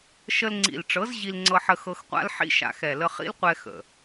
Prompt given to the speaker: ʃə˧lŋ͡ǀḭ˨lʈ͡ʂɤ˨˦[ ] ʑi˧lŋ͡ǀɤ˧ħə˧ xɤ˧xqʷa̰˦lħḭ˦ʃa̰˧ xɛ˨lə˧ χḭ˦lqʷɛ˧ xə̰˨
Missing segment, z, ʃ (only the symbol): z